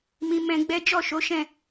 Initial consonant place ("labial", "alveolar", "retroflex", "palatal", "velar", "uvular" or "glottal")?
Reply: labial